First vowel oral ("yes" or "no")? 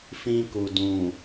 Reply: no